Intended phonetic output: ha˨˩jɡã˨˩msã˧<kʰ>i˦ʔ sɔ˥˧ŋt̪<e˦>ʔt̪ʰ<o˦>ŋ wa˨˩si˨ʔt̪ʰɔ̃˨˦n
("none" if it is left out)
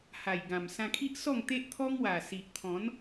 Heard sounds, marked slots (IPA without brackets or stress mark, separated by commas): kʰ, e˦, ɔ˦